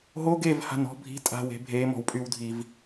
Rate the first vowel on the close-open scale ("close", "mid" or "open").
mid